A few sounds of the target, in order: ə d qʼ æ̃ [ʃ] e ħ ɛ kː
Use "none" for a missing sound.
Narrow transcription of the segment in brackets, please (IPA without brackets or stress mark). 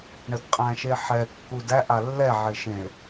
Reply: ʃ